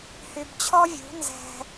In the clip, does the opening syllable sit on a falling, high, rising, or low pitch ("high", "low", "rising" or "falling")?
low